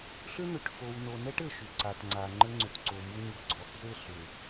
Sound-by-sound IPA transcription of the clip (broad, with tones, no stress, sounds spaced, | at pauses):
ɬ ʏ˦ n̪ ʏ˨ ʈ x o˨ w n o˨ n ɛ˦ ʈ ɘ˨ ʃ ʏ˨ ǀ a˨ t ŋ͡ǀ a˨ ŋ͡ǃ ɘ˦ ŋ͡ǀ ʏ˨ t ǀ o˨ m u˦ ɲ u˨ ɡ͡ǀ ɔ˨ x z ɘ˦˨ ɬ ʏ˨